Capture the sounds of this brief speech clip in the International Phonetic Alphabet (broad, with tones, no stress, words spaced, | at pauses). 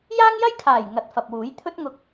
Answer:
jaː˥ŋjɐ˥jkʰaː˨˩j ŋɐ˨˥t̚fɐ˨p̚wuː˨˥j t̪ʰɵ˥t̚ŋʊ˧k̚